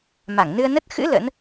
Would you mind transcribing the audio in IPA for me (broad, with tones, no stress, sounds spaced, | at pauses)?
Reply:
m a˧˩ ŋ n ɨ˧ ə̯ n ə˦˥ t̚ x ɨ̰˧˥ l ə̰˧˥ n